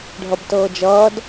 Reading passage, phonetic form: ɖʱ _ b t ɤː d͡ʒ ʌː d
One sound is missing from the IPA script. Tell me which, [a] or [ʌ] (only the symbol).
ʌ